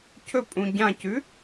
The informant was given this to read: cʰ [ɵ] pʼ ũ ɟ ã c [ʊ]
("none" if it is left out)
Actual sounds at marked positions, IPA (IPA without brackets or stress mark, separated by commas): ɵ, ʉ